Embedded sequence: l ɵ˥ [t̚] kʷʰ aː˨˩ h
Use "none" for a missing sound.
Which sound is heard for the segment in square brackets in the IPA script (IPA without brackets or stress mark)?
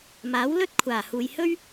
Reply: t̚